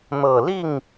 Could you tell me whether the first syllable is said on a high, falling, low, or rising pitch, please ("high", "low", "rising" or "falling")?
low